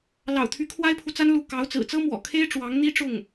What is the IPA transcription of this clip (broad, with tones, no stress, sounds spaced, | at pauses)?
l ɑ̰˨˩ ʊ̯ t̪ʰ y˧˥ kʰ w a˥ ɪ̯ pʰ u˨ t͡s a˥ n l u˥˩ k ɑ˧˥ ʊ̯ t͡s ɹ̩˨˩ t͡s ɤ˥ m w ɔ̰˨˩ kʰ e˥ ɪ̯ ʈ͡ʂ w ɑ˧˥ ŋ n̪ i˥ ʈ͡ʂ ʊ˥˩ ŋ